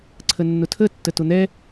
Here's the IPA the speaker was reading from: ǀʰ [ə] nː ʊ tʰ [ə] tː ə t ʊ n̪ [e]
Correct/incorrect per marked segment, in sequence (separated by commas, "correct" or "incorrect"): correct, correct, incorrect